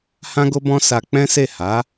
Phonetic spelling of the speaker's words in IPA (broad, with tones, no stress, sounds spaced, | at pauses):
h ã˦ ɡ o˦ b ɔ̃˦ s a˧ k͡p ɛ̃˦ s e˦˨ h a˨˦